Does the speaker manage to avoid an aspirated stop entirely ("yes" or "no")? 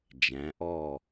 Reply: yes